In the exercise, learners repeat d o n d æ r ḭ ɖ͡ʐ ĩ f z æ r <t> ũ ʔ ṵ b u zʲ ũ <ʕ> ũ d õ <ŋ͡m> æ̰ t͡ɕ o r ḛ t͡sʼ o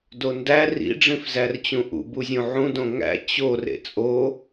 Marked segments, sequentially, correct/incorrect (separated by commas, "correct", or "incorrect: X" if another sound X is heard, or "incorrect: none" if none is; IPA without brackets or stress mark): incorrect: t͡ɕ, correct, incorrect: ŋ